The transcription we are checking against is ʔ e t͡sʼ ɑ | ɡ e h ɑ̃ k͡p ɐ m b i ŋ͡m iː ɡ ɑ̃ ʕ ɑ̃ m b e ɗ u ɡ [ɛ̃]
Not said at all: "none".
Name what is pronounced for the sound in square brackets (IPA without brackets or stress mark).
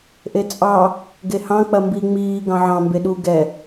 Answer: ɛ